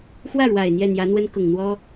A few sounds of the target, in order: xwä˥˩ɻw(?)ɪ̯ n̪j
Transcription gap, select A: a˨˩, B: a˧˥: A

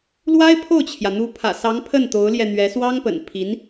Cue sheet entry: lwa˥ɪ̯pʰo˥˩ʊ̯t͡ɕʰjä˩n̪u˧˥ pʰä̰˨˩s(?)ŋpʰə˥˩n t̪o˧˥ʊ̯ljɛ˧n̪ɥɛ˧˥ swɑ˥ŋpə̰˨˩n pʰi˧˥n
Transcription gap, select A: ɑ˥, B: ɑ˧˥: B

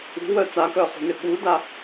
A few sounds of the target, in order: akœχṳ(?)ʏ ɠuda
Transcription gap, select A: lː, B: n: B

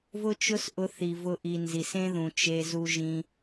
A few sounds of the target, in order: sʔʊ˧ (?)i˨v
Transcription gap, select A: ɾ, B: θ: B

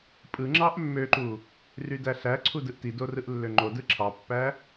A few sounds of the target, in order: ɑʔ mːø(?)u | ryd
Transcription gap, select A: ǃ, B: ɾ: A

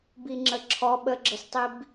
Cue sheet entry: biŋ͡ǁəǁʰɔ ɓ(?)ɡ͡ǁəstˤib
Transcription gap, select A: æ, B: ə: B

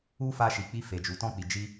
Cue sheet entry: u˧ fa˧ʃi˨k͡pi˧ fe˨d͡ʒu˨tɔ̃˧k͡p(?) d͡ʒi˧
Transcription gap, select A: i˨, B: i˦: A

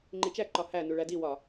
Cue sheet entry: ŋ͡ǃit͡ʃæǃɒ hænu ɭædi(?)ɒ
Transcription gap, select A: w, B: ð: A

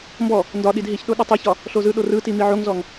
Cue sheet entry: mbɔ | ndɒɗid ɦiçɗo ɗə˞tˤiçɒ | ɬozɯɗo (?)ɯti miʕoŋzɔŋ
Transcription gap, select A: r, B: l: A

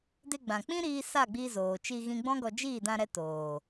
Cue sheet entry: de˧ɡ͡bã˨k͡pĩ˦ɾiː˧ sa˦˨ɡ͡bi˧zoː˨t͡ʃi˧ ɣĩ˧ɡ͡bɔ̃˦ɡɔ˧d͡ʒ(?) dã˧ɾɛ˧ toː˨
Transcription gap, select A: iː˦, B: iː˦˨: B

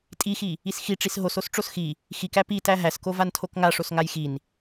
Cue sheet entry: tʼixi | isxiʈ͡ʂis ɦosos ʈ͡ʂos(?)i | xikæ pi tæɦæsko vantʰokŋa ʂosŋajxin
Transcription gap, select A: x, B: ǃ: A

